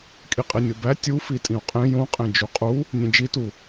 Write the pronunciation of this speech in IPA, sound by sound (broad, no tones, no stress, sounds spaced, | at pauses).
kʼ i qʼ i nʲ o b æ tʲ u f i tʼ ĩ u̯ qʼ ẽ j õ qʼ ẽ d͡ʒ u qʼ u | nʲ ẽ d͡ʒ i t u